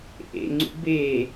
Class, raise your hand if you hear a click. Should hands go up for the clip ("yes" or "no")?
yes